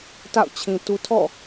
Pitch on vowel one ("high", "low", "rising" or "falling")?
falling